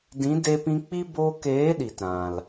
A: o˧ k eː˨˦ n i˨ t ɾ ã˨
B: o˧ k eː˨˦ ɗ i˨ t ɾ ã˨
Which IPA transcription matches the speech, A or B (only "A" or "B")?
B